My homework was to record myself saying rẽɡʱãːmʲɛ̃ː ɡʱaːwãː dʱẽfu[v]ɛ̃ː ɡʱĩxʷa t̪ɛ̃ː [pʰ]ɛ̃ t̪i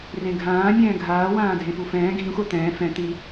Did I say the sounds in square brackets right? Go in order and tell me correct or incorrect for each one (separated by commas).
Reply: incorrect, incorrect